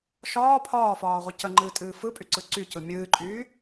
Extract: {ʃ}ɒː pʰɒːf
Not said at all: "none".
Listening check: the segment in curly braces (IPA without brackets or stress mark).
ʃ